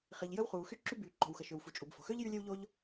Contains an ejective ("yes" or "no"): yes